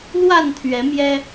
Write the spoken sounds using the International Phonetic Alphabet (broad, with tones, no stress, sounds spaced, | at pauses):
l w a˥˨ n t̪ʰ ɥ ɛ˨˦ m j ɛ˦